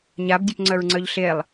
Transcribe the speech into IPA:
ɲabdʲəpŋ͡ǀœɹŋ͡ǀœʎ ɬelˠ

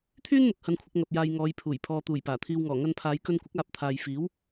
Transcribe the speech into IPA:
t̪ʰyː˥nn̪ʊ˨k̚ hɐ˧nkʷʰɪ˧k̚ ŋɐ˨p̚ jaː˧jŋɔː˨˧jpʰuː˨˩j pʰɔː˨t̪uː˨˩j paː˨˩t̪ʰiː˧wŋɔː˨˩ ŋɐ˧npʰaː˨˧jkɵ˧nkʷɪ˨˥k̚ aː˧p̚ t̪ʰaː˨jfiː˨˥w

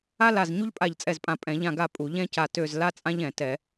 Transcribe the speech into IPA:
a˥la˦˨z ɲu˥ʎpʼa˦˨ʎt͡sʼɛ˦˨zpʼã˦˨ pʼɛ̃˧˩˧ʎã˦˨ɡa˦˨ pʼu˧˩˧ ʎɛ̃˥ca˦˨ tø˦˨z la˥t͡sʼã˥ʎɛ̃˧˩˧ tɛ˧˩˧

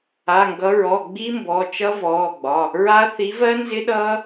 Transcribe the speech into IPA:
a˩˧˩ŋɡʌ˨˦ ɹɔ˩˧˩ɡ͡bi˦˥mbɔ˩˧˩ t͡ʃʌ˦˥vɔː˩˧˩ɡ͡bɒ˩˧˩ | ɹa˦˥ θi˨˦vɜ˦˥nzɪ˦˥ɗʌː˦˥

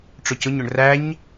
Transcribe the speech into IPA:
ʈ͡ʂʊcʊɲ ʊɳræɲ

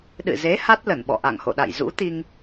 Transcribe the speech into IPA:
ɗɨ̰˧˨ze˨˦ ha˦˥t̚lə˧˩nɓɔ̰˧˨ ʔa̰˧˨ŋho̰˧˨ɗa̰˧˨j zṵ˧˥t̪i˧ŋ

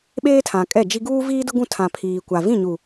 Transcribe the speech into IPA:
ɓeː˦tʰã˨kʼɛ˦˨d͡ʒi˦ ɡuː˦viː˦dʊ˦ɡũ˦˨ tʰã˨ pʰiː˨kʷa˨ vĩ˦˨ɲu˨

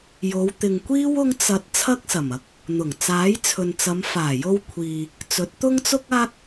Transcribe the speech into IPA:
jo˨˧wt̪ɪ˨ŋkʷiː˥w ʊ˥ŋt͡sɐ˧t̚ t͡sʰɐ˥k̚sɐ˨˩mɐ˧k̚ | n̪ʊ˨˩ŋ t͡saː˨˥jt͡sʰɵ˨nt͡sɐ˨˧m faː˨˩jo˧w kʷʰiː˨ | t͡sɵ˨˥t̚t̪ʊ˥ŋt͡sʊ˥k̚aː˥k̚

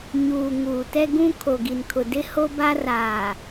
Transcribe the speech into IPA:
ɲuː˨ ŋuː˨tɛ˦ɡũ˦ kʰo˨ɡi˨nkʰʊ˨dɪ˦ ho˦ba˦raː˨

